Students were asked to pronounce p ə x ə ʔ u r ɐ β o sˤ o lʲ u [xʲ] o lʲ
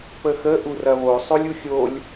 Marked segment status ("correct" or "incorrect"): correct